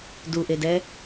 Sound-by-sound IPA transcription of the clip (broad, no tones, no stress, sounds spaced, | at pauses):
d u ʔ e d ɛ